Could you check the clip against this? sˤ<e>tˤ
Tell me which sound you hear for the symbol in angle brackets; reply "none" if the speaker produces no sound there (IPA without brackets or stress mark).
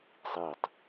i